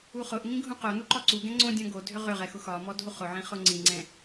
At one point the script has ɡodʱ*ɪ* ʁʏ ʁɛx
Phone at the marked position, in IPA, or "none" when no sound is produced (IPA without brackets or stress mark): ʏ